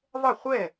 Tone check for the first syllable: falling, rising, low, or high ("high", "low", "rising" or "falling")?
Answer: falling